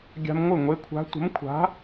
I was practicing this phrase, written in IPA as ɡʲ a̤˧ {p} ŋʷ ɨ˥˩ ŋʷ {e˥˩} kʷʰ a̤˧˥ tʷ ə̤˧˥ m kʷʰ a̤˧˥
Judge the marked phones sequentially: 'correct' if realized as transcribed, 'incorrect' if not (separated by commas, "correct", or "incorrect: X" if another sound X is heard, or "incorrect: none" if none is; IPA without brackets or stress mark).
incorrect: m, incorrect: e˧˥